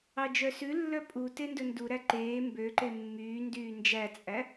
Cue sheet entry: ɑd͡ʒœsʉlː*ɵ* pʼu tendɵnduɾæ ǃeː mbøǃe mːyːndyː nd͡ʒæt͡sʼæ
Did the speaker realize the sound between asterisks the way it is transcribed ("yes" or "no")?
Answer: no